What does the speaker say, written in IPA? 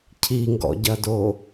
cʰ i ŋ ɡ ɔ̰ ɟ ɐ d o

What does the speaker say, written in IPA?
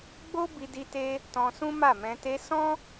ɡ͡b o˦ b i˧ d i˧ t e˧ | t ɔ̃˧ s ũ˦ m a˦˨ m ɛ̃˧ t e˧ s ɔ̃˦

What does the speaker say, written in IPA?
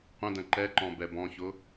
qʷ ə̃ d ə̃ ǃ ɛ ǃ ɔ̃ b ɛ b ɔ̃ ç ʊ

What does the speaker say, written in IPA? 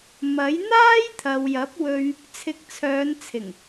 m ɐ˨˥ j n̪ aː˥ j t̪ʰ ɐ˨ w j ɐ˨˥ p̚ w ɵ˧ ɥ | t͡sʰ ɪ˨˥ k̚ t͡sʰ œː˨˧ n t͡sʰ ɪ˨˩ ŋ

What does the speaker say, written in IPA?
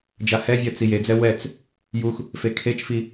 d͡ʒ a h ɛ vʲ ɜ t͡s i j e d͡z ɛ w ɛ t͡s | j u x | f e kʰ e t͡ʃ f i

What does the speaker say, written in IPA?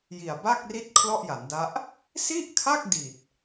j i˨˩ a̯ b a˥˩ k̚ r i˥˩ t̚ kʰ l ɔ˥˩ ʔ j a˩˦ n d a˦˥ ʔ | s i˥˩ ʔ kʰ a˥˩ k̚ d i˨˩ t̚

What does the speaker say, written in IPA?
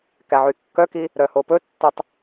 k æ ʕ y kː œ k i | ɾ œ h o p ɵ tː ɵ tˤ

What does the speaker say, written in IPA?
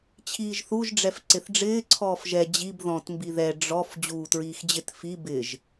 t͡ɕʰ iː ʒ θ u ʒ ɖ͡ʐ ɛ f ǀ ɪ θ ɖ͡ʐ ɪː ǀʰ ɔː f ʒ ɛ d͡ʑ i b ð ɔ̃ t m b i ð ɛ ɖ͡ʐ ɔ f d͡ʑ uː t ɹ iː x d͡ʑ ɪ t f i b ɪ ʒ

